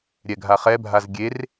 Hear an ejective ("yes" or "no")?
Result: no